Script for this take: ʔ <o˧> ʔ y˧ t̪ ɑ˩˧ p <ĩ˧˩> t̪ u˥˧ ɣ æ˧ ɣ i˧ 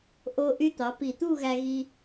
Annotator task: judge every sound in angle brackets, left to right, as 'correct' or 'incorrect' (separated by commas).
correct, incorrect